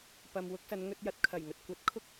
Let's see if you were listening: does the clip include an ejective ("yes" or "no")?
no